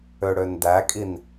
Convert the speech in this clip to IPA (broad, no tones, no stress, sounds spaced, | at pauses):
ø ɽ ø n d æ kʼ i n